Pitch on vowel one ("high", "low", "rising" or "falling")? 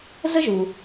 high